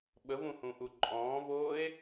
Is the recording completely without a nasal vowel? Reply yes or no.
no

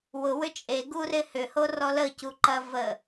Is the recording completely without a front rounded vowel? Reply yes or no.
no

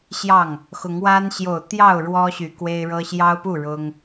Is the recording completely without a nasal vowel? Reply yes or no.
yes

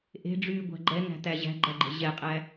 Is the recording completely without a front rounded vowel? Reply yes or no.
no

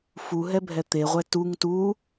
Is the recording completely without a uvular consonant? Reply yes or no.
no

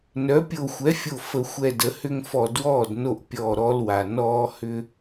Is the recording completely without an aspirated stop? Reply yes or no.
yes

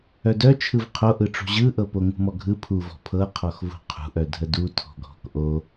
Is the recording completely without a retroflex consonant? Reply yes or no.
no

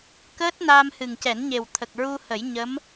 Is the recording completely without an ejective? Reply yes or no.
yes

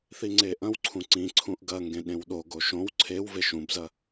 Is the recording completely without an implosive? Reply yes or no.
no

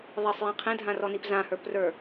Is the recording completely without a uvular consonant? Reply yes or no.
no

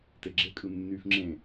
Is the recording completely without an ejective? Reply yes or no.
no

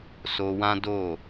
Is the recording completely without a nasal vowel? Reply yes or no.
no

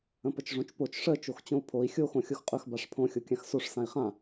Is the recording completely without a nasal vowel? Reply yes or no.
no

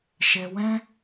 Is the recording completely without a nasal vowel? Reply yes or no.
no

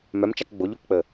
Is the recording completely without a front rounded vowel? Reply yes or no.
no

